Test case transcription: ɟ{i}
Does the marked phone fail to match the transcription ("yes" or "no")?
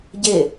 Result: yes